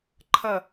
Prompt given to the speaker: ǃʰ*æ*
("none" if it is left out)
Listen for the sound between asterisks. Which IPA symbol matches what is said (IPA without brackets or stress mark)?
ɐ